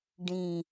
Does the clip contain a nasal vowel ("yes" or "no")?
yes